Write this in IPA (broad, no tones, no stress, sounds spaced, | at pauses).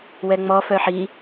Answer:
w ɛ ŋ͡m ɔ f œ ħ i